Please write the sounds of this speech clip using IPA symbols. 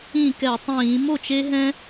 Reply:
ĩ˥˩kɛ˧˩˧tˤĩː˧˩˧ mo˥˩t͡ʃe˦ɦɛ̃˦

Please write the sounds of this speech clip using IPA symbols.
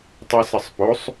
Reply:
tˤɪsəsˤposˤ

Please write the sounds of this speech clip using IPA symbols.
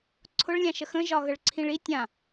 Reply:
ǀʰʊɭlʲãʃə xə̃ʒɒ ɣəɭǀʰĩɭi tʲã

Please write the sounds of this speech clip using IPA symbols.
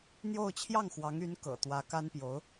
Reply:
n̪jo˥˧ʊ̯ t͡ɕʰjɑ˥˩ŋxwɑ˧˥ŋy˧˥n kɤ̰˨˩t̪wä˧˥ ka˥npjo˧˥ʊ̯

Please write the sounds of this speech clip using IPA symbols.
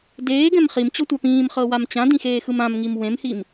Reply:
deːɡɛ̃m χimt͡ɕɔtʷa pĩːmχɤwam t͡ɕãdĩxeːxɯm ãmŋim wẽmhim

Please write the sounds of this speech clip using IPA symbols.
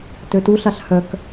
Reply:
tøtuɬaɬ hœk

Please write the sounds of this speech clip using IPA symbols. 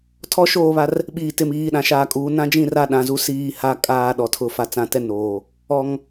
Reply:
tʰɔ˦ʃoː˦˨βa˦r | ɓiː˨tɪ˨m iː˨ɗã˨ʃaː˨kʼuː˨ nã˦d͡ʒĩ˦˨ ra˦ɗã˨zu˦ siː˦˨ha˦ kʼaː˦˨ɗɔ˨tʰʊ˦˨ fa˨t͡sã˨tɛ˦noː˨ | ɔ˨ŋ

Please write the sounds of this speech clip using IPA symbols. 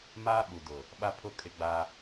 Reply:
maː˦ɓu˨dʊ˨ | ɓa˦pʰʊ˦ kʼɪ˦ɡ͡ba˦

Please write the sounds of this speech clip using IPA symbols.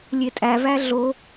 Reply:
lʲetʼævæ ɮo

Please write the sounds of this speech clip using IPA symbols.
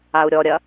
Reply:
au̯ɾʲɔɾʲɐ

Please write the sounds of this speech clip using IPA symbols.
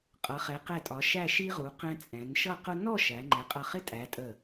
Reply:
qʼʌ˩˧χɛ˩˧qɛ˧˩tʼɒ˩˧ ʃæ˥˧ʃi˥ʁu˩˧ qɛ̃˧t͡sʼɛ̃˩˧n ʃʌ˥˧qʊ˥ nɔ˥˧ ʃæ˩˧ ŋ͡ǃɛ˩˧qʼʌ˧˩χɪ˥˧tʼæ˩˧ tʼə˧˩

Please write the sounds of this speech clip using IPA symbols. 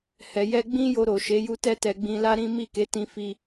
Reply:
hɛ˨jɛ˧ ɡ͡bĩ˦jo˧ ɾo˨ʃe˨˦ ju˧tɛ˧tɛ˨ ɡ͡bĩ˧la˦ ɾĩ˦ mi˦˨ke˨˦ tĩ˧fi˧

